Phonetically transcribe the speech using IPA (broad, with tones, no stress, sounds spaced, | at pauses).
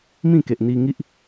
m ĩ˥˧ k e˨ ʔ n̪ i˧ ŋ i˦ ʔ